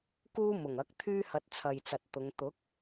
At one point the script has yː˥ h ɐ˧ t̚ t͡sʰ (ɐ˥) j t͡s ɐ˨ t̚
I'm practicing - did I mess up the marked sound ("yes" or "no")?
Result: yes